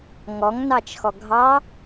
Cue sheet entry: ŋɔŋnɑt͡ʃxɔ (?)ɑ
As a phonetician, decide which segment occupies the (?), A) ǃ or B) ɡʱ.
B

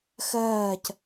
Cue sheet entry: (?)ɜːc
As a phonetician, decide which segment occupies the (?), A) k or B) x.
B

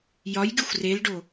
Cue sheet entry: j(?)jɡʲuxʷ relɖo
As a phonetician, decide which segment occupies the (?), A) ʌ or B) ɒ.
B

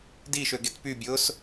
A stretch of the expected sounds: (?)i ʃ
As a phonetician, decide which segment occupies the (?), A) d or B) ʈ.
A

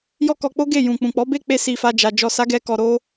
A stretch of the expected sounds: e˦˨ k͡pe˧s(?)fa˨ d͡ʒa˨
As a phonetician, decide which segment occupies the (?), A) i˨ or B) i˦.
A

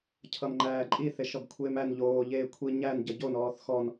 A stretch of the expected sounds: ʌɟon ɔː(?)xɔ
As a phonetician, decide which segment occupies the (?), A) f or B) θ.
B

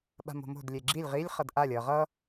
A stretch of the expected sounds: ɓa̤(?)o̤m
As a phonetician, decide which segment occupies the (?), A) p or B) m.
B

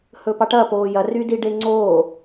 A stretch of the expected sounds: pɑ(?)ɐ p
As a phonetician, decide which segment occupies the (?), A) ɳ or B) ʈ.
B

